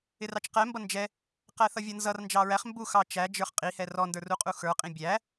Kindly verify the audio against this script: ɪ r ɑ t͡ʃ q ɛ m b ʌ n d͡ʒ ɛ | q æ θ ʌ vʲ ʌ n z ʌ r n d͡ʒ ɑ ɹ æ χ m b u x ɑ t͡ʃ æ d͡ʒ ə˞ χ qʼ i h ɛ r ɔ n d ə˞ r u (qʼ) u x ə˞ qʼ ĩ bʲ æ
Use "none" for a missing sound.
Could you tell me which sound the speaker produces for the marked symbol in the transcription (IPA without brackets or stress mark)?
qʼ